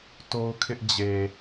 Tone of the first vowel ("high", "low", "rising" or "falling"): high